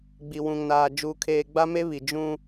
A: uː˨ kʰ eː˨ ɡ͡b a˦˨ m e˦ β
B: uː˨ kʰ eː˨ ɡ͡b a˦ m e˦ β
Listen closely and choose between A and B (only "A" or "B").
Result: B